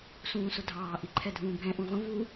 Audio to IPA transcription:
s ũː s ʊ dʱ ɑː ʔ i ǃʰ ɛ dʱ ũː bʱ ɛ̃ ʔ ũ ʁʷ ə̃ v u

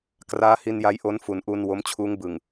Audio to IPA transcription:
k r aː˦˥ h i˧ n j a˦˥ j ʔ o˦˥ n f u˩˦ n ʔ u˧ n w o˦˥ m t͡ɕʰ uː˦˥ ŋ b ɯ˨˩ ŋ

